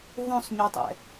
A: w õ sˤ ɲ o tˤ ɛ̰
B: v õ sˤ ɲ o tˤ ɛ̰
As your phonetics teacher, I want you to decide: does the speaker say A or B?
B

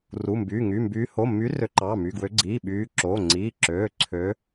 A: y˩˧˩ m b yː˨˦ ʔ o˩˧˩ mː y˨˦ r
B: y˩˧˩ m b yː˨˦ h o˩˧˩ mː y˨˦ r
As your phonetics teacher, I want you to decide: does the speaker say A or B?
B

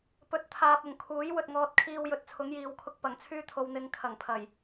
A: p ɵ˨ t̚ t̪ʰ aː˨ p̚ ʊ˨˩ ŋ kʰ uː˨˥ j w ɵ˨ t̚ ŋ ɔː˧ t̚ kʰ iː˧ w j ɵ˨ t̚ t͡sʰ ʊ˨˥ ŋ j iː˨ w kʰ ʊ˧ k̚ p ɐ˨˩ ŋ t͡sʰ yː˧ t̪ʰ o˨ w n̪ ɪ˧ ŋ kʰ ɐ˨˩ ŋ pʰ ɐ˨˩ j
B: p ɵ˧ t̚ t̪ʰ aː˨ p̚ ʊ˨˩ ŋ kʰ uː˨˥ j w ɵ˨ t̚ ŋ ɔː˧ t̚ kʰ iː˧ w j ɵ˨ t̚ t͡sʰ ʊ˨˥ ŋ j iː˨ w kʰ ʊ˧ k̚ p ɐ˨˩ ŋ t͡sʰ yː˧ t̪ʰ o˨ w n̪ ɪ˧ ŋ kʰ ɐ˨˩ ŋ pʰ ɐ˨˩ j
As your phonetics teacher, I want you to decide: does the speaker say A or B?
A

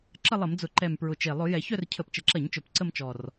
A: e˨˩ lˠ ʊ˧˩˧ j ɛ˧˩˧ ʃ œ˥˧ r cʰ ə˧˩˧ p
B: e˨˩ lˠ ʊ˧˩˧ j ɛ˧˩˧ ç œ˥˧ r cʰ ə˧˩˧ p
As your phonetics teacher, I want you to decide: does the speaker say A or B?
B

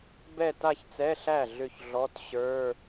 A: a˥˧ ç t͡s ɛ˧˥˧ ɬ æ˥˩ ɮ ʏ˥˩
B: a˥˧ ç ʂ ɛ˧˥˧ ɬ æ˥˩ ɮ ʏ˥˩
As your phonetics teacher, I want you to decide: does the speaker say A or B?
A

